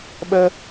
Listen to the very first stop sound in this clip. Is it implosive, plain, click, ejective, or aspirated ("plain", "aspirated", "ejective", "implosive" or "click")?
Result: implosive